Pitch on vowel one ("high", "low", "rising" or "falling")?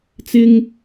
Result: high